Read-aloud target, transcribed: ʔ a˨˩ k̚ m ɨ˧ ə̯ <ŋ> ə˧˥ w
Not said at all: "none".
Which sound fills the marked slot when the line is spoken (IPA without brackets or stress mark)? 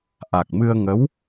ŋ